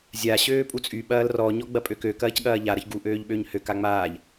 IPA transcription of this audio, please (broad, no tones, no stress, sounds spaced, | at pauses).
zʲ a ɕ øː pʼ u t͡sʼ y ɓ ɐː l r ɔ ɲ ɔ ɡ͡b ɐ pʼ ø k ø k ɐː c ɠ ɐː ʎ a ɾ ɐ ç ɡ u ʔ øː ʎ ɓ ø ɲ h ø k a ŋ͡m aː ʎ